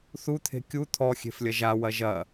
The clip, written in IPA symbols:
θut̪ʰe̤ kʲu t̪ʰɔxʲe̤flʲɐ ʒawɐ ʒɐ

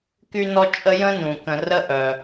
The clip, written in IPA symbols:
ky˥nɔ˥t͡ʃʼə˥ jə̃˥nũ˩kə̃˨ rə˥ʔœ˩

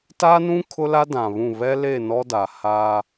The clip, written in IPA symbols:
ta˦nũ˦ kʰʊ˦la˦ dã˨βũ˦˨ βɛ˦le˦˨ nɔ˦da˨haː˦

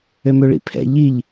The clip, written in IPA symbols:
ømøɭḭpʰɛ̰ ʎiʎ

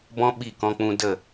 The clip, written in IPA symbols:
bɔ̃˦ɓi˦˨kɔ̃˧k͡pũ˧ də˦˨

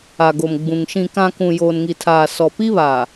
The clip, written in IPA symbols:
a˨ɡo˨mɡ͡bũ˨ŋ ʃĩ˨ kã˨ kũ˨joː˨nŋi˨tʰaː˨ sɔ˨ pi˦βa˨

